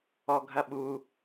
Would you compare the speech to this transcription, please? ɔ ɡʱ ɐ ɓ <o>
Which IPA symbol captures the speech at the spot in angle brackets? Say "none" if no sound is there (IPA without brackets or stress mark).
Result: u